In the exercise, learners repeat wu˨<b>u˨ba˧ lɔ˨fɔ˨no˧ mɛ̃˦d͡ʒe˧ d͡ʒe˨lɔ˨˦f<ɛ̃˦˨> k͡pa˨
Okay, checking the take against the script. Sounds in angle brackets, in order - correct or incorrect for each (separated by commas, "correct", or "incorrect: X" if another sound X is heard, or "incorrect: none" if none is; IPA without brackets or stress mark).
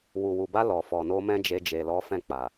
incorrect: w, correct